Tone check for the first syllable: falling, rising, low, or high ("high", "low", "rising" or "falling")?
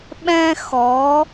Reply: high